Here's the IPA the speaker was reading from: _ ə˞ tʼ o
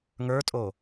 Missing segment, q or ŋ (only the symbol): ŋ